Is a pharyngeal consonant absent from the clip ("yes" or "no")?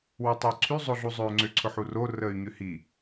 no